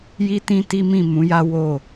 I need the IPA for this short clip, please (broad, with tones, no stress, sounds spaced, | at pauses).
j i˦ t ĩ˦ t i˦ m ĩ˦˨ m ũ˨˦ j a˦ w o˦˨